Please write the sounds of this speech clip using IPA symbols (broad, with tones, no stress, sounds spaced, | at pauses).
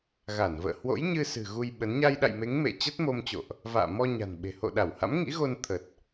ɣ a˧˩ n v ə̰ː˧˨ h w o̰˧˥ j ɲ ɨ˧ s ɨ̤˨˩ ɣ u˧ j ɓ ə˨˦ n ɲ a˧ j ɗ a̰˧˨ j m e˨˦ ŋ m ḛ˧˨ t͡ɕ ə˦˥ t̚ m o˧ m t͡ɕ o̰˧˨ ʔ | v a̰ː˧˨ m ɔ˧ ɲ a̤˨˩ n ɓ e̤˨˩ h o̰˧˨ ɗ a˧˩ w h a̰˧˥ m ŋ ḭ˧˥ ɣ o˧ n t̪ʰ ə˨˩ t̚